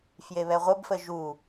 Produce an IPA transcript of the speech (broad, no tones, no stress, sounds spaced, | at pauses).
f j e β ɛ ʁʷ ə b f ə ʒ u